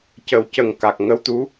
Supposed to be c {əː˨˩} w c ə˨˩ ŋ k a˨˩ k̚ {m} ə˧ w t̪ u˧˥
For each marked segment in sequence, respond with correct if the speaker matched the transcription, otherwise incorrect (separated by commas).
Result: incorrect, incorrect